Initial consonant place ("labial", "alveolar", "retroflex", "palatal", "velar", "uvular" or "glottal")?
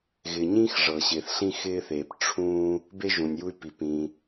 velar